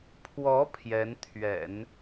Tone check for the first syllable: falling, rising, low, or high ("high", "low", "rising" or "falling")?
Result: rising